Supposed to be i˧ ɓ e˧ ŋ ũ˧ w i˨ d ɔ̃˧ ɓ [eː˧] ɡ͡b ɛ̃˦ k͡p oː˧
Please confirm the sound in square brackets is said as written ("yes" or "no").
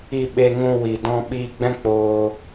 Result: no